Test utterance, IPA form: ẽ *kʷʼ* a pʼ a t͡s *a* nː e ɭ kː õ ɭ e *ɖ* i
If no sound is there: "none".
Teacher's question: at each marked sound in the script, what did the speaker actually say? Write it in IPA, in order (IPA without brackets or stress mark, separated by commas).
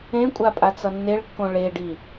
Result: kʷʼ, ʌ, ɖ